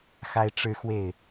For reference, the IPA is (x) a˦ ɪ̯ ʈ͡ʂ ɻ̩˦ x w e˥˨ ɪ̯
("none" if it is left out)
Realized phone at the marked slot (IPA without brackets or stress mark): x